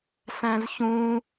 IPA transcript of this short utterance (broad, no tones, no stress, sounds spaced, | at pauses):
s æ̃ z ç ũ